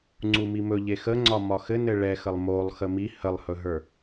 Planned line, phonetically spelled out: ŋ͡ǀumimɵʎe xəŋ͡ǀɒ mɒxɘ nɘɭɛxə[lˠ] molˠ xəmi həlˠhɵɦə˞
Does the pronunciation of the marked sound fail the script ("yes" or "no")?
no